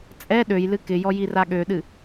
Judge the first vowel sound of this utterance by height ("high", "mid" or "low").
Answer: mid